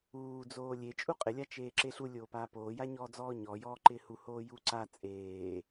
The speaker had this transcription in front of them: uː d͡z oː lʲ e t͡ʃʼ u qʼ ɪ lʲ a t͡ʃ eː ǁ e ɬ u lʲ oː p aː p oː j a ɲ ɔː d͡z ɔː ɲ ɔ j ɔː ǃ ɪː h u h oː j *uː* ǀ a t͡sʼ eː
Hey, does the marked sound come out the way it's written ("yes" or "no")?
yes